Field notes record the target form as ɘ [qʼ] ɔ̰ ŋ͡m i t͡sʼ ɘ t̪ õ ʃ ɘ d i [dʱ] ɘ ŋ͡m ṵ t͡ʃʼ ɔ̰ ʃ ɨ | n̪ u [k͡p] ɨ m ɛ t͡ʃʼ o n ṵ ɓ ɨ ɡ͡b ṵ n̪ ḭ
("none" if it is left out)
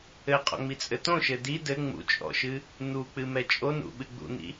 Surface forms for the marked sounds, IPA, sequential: qʼ, d, k͡p

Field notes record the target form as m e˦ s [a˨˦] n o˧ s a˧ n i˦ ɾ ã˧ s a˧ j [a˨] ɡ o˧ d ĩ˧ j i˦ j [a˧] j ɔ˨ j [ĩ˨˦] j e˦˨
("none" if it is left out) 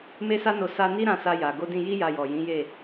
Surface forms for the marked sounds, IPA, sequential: a˦, a˨, a˧, ĩ˨˦

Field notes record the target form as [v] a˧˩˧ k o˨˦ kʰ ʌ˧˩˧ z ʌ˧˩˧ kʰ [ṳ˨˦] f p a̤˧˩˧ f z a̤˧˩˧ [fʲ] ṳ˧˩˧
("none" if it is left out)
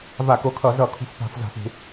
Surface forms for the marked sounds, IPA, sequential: v, ṳ˨˦, f

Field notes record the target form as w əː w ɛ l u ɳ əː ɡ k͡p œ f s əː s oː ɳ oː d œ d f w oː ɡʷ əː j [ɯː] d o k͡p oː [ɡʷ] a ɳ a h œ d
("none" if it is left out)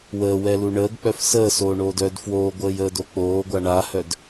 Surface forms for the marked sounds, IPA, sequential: əː, ɡʷ

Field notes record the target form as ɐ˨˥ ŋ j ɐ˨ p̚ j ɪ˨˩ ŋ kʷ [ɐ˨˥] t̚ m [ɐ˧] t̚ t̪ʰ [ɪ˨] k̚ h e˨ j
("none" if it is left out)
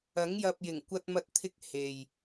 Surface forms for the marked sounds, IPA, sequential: ɐ˧, ɐ˧, ɪ˧

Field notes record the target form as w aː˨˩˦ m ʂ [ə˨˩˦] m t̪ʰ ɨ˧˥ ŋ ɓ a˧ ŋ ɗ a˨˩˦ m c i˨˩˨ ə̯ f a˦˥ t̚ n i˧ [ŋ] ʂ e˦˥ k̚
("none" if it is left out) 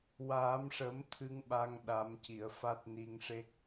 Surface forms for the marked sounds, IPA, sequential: ə˨˩˦, ŋ

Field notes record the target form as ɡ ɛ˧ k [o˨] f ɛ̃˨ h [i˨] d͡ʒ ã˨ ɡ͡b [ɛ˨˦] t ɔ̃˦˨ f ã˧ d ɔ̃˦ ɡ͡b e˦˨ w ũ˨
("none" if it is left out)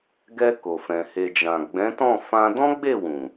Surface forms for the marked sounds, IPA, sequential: o˨, e˨, ɛ̃˨˦

